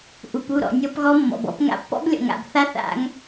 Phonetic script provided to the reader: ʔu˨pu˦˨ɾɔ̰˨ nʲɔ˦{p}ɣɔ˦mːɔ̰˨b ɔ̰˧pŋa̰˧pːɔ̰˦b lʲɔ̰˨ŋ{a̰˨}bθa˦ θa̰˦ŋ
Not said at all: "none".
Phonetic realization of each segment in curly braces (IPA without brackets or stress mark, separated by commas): p, a̰˨